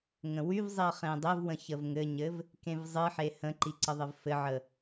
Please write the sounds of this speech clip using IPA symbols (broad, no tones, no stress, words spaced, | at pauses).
ŋə̃wyvzˤiə̯ χẽdˤɘvwə̃ çəvŋɘɲɘv | kẽvzˤɨħe hə̃ǃi ǀəðˤɘvfɘʕə